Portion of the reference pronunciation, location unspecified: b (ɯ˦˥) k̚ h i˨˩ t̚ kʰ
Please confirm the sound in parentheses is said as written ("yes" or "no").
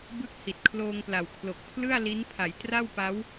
yes